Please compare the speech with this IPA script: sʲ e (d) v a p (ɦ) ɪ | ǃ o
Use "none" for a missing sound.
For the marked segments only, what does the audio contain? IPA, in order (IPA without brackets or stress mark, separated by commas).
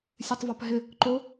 tˤ, ɦ